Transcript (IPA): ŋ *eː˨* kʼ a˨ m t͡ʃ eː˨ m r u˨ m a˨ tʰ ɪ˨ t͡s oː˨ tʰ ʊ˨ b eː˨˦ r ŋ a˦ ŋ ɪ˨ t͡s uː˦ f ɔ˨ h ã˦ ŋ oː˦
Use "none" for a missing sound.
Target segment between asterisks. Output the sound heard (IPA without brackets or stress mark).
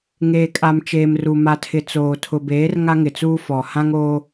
eː˨